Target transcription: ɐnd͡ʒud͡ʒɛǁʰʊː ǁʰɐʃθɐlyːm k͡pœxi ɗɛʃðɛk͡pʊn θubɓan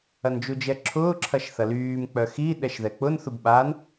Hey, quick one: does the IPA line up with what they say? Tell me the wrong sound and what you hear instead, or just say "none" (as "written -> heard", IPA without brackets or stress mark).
none